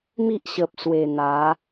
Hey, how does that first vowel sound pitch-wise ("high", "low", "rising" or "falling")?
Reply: high